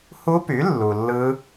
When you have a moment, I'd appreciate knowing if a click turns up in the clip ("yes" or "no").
no